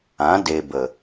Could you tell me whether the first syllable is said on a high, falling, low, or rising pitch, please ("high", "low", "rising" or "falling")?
rising